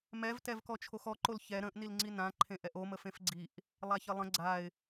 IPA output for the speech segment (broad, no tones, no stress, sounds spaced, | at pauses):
m ɛ v t ɛ v k ɔ t͡ʃʰ o x ɔ ǃ o l ç ɛ ɾ ə̃ ʔ n i l ŋ͡ǀ i n ã ǃʰ ẽ ʔ ɛ ʔ o m ə f ẽ f ɡ͡ǀ i ʔ | lˠ a ç ə lˠ ə̃ ɡ͡ǀ a ɪ̯